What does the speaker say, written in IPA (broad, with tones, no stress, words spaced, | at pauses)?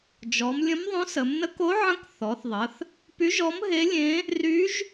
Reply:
d͡ʒɔ˩˧mlʲə̃˧˥mðˤõ˧˥s ə˩˧mnə˧˥ko˧˥ʕə̃˧˥k θɔ˩˧θðˤə˩˧θ | py˧˥ʒɔ˧˥m ɦe˧˥lʲẽ˧˥ | ry˧˥ʒ